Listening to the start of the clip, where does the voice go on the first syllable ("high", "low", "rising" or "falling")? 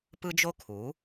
high